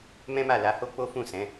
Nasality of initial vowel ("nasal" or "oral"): nasal